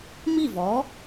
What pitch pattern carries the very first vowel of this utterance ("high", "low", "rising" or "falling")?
falling